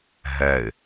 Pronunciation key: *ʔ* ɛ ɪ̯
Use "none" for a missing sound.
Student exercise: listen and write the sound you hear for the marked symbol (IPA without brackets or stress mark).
ɦ